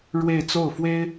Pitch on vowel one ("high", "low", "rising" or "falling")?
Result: falling